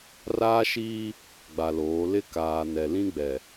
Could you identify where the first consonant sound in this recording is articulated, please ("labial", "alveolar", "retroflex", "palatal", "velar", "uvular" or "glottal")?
alveolar